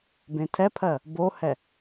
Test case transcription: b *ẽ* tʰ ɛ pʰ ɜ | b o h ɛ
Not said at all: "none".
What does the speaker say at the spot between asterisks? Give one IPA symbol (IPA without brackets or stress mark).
ẽ